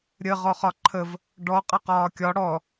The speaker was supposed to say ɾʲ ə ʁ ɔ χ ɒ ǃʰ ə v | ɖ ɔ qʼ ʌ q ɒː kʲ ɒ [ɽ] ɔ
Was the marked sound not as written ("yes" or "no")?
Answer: no